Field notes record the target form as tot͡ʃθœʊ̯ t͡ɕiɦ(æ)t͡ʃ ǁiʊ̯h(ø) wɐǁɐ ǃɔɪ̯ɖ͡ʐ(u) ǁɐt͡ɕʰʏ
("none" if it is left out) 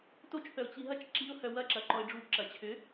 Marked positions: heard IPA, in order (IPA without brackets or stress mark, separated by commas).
ɐ, œ, u